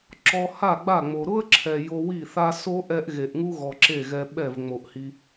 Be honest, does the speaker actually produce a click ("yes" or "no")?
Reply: yes